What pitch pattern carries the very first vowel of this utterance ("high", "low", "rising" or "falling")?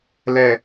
low